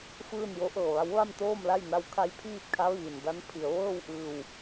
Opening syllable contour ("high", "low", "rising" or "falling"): falling